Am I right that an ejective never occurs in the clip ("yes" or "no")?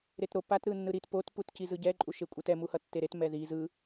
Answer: no